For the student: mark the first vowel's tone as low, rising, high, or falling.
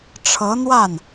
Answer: rising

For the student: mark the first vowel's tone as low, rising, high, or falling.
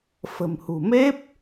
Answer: low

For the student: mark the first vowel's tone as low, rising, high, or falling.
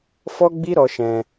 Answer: high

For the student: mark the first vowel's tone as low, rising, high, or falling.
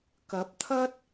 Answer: rising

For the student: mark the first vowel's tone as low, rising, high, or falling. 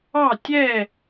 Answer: falling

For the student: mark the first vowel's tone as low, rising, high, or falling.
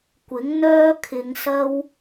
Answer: rising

